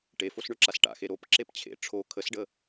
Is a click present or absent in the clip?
present